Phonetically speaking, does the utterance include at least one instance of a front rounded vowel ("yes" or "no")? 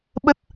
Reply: no